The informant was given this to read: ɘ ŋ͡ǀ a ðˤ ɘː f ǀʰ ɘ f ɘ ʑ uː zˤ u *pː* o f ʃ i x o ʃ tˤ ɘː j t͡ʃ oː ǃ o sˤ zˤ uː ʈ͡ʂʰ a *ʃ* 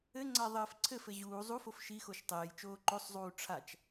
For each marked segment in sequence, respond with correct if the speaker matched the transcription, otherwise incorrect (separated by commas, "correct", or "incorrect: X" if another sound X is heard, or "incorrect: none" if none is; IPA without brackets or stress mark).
incorrect: f, incorrect: t͡ʃ